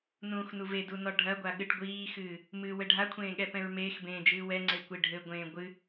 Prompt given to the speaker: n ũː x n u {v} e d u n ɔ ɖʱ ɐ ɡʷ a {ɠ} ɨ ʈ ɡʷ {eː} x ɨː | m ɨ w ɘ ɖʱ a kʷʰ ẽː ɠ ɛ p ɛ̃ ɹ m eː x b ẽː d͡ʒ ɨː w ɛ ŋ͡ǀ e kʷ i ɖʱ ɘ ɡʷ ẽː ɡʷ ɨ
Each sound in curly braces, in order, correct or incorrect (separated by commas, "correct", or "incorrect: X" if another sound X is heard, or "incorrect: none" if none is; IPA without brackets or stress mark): correct, correct, incorrect: iː